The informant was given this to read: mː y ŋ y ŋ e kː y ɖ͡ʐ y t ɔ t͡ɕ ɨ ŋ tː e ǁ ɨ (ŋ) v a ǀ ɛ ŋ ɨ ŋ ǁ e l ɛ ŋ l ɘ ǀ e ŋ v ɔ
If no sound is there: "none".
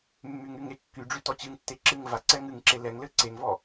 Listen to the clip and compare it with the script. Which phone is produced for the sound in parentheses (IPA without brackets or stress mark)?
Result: ŋ